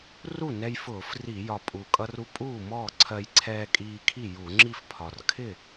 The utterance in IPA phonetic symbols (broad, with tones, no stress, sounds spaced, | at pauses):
r u˥˩ n ɛ˧ j f ʊː˧˩˧ f r i˧˩˧ j ɒ˨˩ pʼ u˨˩ kʼ ʌ˧ r u˧ pʼ uː˥˩ m ɔː˥˩ ǀʰ ɜ˧ j ǀʰ ɛː˧ kʼ iː˧ kʰ i˥˩ j u˧˩˧ ŋ͡ǁ i˥˩ f pʰ ɒ˨˩ r kʰ ɪ˥˩